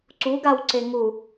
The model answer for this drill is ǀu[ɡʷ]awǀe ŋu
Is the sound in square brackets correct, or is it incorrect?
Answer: incorrect